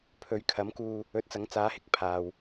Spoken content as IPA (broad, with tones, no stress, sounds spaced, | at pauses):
pʰ ɵ˨˧ ɥ kʰ ɐ˨˥ m k uː˧ | ɵ˨˥ t̚ t͡s ɐ˨˥ ŋ t͡s aː˨˥ h ɪ˧ k̚ pʰ aː˨ w